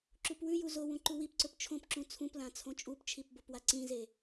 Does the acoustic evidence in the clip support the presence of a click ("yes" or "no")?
yes